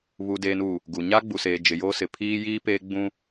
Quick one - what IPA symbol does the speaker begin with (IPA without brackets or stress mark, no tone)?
β